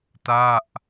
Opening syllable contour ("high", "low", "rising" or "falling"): falling